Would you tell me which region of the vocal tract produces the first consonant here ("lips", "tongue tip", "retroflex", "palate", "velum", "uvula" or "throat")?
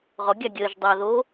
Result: uvula